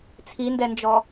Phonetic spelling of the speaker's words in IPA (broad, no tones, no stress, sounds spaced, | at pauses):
t͡sʰ i n d ɛ n d͡ʒ ɔ